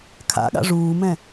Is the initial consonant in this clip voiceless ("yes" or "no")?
yes